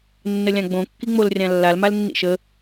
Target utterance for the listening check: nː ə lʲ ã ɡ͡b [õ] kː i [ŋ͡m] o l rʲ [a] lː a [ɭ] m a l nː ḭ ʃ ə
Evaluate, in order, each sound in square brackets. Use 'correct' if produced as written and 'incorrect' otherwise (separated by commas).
correct, correct, incorrect, incorrect